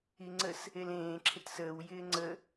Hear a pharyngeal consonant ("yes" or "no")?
no